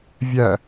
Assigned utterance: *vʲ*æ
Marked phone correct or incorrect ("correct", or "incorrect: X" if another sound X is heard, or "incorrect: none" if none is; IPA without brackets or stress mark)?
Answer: correct